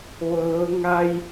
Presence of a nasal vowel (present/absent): absent